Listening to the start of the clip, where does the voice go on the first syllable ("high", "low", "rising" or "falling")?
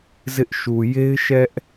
high